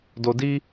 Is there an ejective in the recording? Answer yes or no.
no